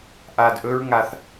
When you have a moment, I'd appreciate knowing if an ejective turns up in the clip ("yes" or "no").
no